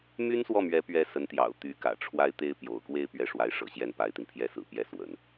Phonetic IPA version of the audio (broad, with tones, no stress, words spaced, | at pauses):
my˥nswɔ˥˩mɥɛ˧˥pɥɛ˧˥ sə˧˥nt̪jɑ̰˨˩ʊ̯ t̪y˧˥kä̰˨˩ ʈ͡ʂʰwa˥ɪ̯t̪e˥ɪ̯ pjo̰˨˩ʊ̯kwe˥˧ɪ̯ pɥɛ˥˩ ʂwa˧˥ɪ̯ʂɤ̰˨˩ ɕjɛ˥˩npa˧˥ɪ̯t̪i˧n pʰjɛ˥sɹ̩˨˩pjɛ˥˩ swə̰˨˩˦n